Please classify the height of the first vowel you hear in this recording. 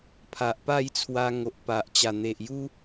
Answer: low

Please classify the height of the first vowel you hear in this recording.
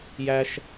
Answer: low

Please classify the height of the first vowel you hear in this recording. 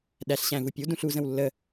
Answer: low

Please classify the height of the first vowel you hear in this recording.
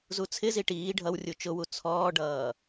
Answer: high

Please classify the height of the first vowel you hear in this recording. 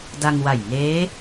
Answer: low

